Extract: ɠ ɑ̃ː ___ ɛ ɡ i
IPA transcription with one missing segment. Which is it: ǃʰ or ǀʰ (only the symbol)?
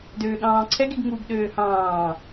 ǀʰ